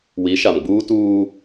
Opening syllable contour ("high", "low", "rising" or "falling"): rising